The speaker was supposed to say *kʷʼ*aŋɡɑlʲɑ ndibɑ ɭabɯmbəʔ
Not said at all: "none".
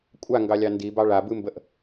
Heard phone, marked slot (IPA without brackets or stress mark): kʷʼ